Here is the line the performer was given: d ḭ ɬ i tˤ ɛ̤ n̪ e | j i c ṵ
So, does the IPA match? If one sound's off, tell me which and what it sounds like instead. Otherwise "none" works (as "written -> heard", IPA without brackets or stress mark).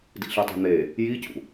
none